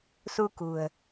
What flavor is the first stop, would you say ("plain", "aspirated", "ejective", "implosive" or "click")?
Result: plain